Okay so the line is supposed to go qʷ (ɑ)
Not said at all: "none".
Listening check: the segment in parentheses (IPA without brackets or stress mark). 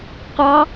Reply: ɑ